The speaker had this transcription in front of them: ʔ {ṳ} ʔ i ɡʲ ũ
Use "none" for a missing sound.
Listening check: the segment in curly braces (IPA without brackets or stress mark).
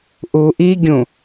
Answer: u